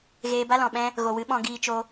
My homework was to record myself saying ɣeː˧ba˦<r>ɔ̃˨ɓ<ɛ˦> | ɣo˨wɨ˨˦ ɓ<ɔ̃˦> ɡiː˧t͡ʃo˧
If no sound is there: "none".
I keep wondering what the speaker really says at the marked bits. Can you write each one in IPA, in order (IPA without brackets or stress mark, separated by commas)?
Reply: l, ɛ̃˦, ɔ̃˧